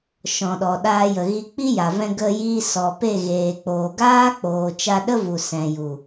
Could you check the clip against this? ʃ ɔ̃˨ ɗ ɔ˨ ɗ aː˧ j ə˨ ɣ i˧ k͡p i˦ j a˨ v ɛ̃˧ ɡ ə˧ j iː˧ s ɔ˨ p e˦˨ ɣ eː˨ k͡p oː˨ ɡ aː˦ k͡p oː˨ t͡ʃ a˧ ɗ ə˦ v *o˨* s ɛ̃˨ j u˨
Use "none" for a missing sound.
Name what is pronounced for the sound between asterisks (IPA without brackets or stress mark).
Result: u˨